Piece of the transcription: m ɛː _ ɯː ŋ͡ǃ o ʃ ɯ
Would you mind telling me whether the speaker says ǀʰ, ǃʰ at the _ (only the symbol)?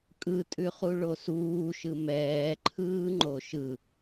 ǃʰ